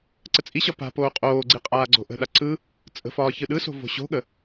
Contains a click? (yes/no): yes